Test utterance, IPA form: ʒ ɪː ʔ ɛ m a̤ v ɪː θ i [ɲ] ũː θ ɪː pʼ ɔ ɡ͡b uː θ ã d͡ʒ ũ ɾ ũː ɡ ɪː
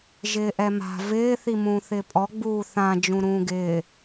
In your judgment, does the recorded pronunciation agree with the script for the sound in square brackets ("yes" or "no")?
no